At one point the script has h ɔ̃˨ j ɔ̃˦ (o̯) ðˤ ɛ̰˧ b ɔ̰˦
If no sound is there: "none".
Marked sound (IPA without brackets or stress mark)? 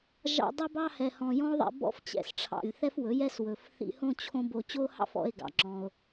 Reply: o̯